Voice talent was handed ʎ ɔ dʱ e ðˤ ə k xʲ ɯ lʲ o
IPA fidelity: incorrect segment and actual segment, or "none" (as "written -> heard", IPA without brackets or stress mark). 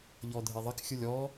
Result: o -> ɔ